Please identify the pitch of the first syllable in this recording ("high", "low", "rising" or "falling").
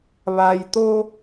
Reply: low